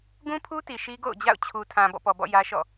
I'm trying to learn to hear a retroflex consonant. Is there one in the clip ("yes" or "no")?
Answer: no